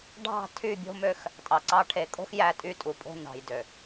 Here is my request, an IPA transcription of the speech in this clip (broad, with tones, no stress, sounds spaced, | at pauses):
ɖʱ ɑ̤˦˨ tʰ y˦˨ bʲ o̤˦ m ø˦ x | tʼ ɑ˨ ǀ ɑ˦ ʈʰ e˨ kʼ o̤˦ x j æ˦ tʼ y˦ tʼ u˨ pʼ o̤˦ n ɑ̤˨ j d ø˨